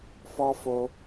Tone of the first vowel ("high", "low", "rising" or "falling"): high